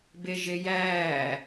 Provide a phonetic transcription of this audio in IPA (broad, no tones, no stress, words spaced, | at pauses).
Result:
beʒejæː